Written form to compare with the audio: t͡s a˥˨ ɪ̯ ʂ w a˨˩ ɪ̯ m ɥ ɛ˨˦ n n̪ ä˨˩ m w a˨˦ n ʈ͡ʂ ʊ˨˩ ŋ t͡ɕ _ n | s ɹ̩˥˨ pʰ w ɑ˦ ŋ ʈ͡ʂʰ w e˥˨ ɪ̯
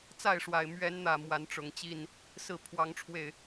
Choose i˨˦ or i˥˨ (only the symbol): i˥˨